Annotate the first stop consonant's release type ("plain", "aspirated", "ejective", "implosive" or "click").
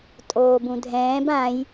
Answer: ejective